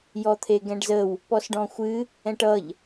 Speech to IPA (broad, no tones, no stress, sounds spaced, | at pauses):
j ɔ t̪ʰ e ɡ ɛ̃ ɖ z ə w | p ɔ s ɖ ɔ̃ xʷ ɨ | ɛ̃ ʈ ʌ ʎ